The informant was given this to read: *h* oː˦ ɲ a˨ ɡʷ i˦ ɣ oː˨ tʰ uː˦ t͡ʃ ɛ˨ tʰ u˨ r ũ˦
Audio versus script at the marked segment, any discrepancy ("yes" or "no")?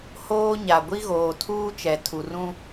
no